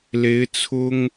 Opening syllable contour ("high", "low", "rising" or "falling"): rising